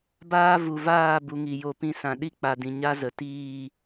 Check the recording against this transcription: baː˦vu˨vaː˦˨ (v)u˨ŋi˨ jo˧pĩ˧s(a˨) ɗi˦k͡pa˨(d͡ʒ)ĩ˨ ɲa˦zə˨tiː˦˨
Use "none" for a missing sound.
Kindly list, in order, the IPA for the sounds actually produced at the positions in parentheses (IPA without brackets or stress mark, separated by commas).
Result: b, ã˨, d